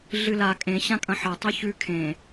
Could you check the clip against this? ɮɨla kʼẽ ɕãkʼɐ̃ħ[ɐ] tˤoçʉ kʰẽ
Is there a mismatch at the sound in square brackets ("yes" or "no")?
no